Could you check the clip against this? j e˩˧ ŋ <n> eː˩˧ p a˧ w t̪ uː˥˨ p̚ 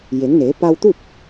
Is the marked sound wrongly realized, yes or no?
no